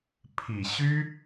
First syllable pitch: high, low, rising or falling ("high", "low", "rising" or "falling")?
low